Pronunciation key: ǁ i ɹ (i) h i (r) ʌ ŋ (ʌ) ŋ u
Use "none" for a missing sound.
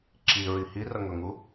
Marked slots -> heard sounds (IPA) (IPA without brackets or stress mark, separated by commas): i, r, ʌ